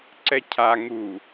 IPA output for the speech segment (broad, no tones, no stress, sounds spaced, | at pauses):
ǀ ɛ cʰ a ŋ u